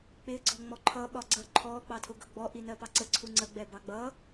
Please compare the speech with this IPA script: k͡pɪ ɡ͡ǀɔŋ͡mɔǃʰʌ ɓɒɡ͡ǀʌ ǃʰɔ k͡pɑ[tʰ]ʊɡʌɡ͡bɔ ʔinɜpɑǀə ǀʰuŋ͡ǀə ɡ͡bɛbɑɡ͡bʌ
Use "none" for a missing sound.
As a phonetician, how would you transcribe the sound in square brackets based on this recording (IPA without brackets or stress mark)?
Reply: tʰ